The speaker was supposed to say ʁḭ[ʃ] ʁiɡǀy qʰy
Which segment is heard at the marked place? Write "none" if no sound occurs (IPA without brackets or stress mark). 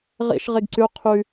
ʃ